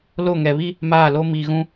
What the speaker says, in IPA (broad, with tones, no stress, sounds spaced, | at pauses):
l o˦˨ ŋ ɛ˨ β i˦ | m aː˦˨ l o˦ m iː˨ ɣ ũ˦